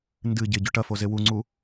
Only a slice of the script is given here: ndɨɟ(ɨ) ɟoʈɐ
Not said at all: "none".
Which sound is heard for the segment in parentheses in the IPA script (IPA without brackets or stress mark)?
e